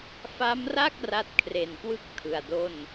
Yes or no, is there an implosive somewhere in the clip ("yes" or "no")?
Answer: no